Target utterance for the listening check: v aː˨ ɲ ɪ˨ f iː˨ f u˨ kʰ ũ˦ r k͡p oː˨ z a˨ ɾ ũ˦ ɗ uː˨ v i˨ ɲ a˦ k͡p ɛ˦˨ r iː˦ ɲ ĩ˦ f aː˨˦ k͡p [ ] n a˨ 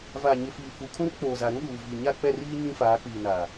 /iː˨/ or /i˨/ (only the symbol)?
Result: iː˨